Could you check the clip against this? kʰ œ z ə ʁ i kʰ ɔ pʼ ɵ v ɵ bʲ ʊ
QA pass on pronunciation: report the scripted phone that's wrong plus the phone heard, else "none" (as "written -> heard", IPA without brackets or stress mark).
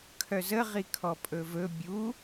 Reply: ʊ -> u